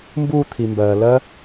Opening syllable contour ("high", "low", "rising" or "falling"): falling